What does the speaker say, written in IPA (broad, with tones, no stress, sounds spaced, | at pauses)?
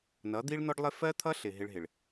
n ʌ˨˦ d̪ i˦ ɭ n ɔ˦ ɖ lˠ ɪ˦ f ɜ˦ t̪ʰ ʌ˦ ɬ ɪ˨ ɦ ɪ˦ ɭ ɦ ɪ˨ ɭ